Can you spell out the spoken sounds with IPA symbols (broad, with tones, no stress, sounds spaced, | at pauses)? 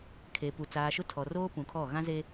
kʰ e˨ p u˨ t͡s aː˨ ʃ ʊ˦ tʰ ɔ˨ r oː˦ p ũ˨ kʰ ɔ˦˨ ɣ ã˦ z e˦